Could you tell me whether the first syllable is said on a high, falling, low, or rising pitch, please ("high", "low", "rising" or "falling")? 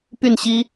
falling